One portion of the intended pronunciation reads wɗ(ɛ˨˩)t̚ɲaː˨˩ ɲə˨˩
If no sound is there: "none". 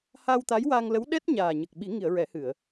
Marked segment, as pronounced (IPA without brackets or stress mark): ɛ˦˥